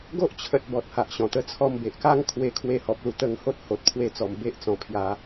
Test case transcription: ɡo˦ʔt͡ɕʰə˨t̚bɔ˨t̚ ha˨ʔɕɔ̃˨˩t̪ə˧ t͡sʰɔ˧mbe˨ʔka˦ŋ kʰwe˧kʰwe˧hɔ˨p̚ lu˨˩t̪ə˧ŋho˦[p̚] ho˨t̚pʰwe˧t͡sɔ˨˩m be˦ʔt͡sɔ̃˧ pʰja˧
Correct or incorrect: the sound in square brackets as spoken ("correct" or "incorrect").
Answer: incorrect